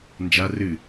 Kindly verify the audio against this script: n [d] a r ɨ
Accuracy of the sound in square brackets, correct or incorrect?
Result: incorrect